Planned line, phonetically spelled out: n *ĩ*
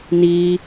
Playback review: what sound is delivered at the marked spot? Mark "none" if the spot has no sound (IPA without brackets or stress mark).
i